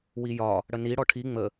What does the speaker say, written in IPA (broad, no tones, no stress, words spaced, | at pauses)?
wijɒ | ɽəni ɽɔʈʰi ŋ͡mə